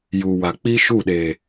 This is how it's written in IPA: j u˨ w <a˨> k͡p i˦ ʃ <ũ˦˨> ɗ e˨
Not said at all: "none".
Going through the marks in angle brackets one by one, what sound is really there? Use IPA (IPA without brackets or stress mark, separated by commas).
a˨, u˦˨